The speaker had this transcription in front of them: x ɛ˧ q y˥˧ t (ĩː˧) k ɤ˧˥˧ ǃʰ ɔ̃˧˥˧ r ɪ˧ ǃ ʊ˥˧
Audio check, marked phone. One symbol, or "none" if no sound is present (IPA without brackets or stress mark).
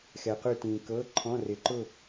ĩː˧